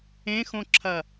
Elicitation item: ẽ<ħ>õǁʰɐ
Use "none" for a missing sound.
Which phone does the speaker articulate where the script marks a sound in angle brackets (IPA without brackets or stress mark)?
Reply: x